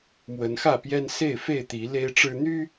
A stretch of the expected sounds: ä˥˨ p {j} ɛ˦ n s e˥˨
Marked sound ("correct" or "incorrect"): correct